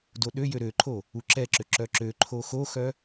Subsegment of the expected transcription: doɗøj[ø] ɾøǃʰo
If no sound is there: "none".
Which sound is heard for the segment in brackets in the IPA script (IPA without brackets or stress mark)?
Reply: ø